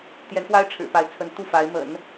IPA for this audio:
t̪ j ɛ˧˥ n x w a˥ ɪ̯ ʈ͡ʂʰ ɻ̩˨˩ p a˧˥ ɪ̯ t͡sʰ ə˧˥ n t̪ u˥˩ f a˧˥ ɪ̯ m ə̰˨˩˦ n

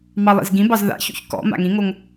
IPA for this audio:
m ɑ lˠ ḭ z ɡ ĩ b ɑ z ð a̰ ç ṵ ç k ɔ̰ m a̰ ŋ ĩ ŋ o ŋ

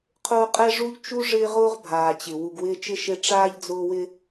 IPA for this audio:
qʰ ʊː˦ qʼ ɛ˥ ʐ u˥ ʎ t͡ʃ u˥ ʐ ɪː˦ ʁ ʊː˥ ʁ bʱ aː˩ t͡ɕ ɪ˩ w u˨ ɡ w ɪː˦ t͡ʃ ɪ˥ ʃ e˦ ʈ͡ʂ aː˥ ʎ d͡z ʊː˦ w ɪ˥

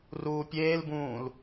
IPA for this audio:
r uː pʲ eː l b ũː l

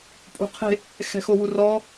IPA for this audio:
pʼ ṳ qʰ e̤ | x ɛ̤ x o w u r ɔ

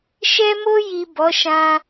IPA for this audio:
ʃ ɛ˧ m o˧ j i˨ b ɔ˨˦ ʃ ã˧

